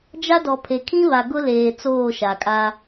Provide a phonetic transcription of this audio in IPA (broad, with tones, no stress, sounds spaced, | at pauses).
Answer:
d͡ʒ a˦ d ɔ˨ pʰ e˨ kʰ ĩ˦ β a˨ ɡ ʊ˦ l eː˨ t͡s oː˦˨ ʃ a˨ kʼ a˦